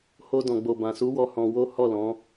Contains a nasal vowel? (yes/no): yes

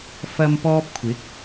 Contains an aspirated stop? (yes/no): yes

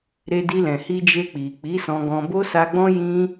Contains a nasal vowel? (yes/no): yes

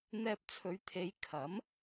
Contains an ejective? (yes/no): no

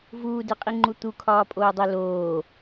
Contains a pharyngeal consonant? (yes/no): no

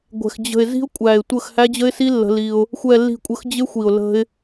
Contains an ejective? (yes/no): yes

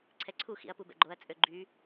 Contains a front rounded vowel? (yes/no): yes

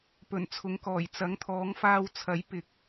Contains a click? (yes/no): no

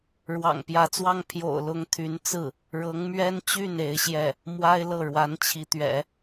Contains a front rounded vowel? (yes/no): yes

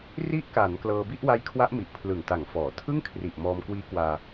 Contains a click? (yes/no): no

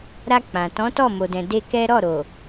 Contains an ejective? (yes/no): no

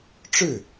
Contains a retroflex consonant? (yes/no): yes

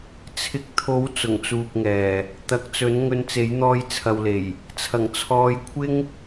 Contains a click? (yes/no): no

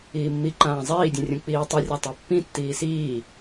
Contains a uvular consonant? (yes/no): no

